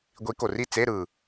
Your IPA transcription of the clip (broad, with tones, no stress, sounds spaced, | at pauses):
ɡʷ i˨˦ k o˨˩ r i˥˨ t͡s e˧˥˧ ɾ ɯ˨˩